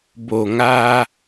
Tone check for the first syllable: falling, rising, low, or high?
low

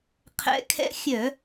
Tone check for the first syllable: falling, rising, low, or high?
rising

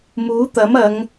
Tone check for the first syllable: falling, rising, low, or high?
rising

